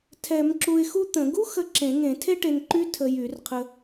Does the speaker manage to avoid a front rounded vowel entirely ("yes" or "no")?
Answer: no